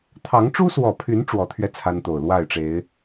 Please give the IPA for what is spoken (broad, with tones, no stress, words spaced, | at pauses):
t̪ʰɑ˨˦ŋʈ͡ʂu˦swɔ˨˩pʰy˨˦n ʈ͡ʂwɔ˨˦t̪ʰɥɛ˧ t͡sʰa˦nt̪o˨˩ʊ̯ lwa˥˨ɪ̯ʈ͡ʂe˨˦ɪ̯